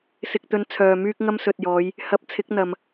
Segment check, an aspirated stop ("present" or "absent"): present